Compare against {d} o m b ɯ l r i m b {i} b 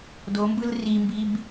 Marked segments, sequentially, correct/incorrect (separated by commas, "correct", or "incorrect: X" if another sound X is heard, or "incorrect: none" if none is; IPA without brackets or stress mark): correct, correct